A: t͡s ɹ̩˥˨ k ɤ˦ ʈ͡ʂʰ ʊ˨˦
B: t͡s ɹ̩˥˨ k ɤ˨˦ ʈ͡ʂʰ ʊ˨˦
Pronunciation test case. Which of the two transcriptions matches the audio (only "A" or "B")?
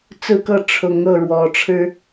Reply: A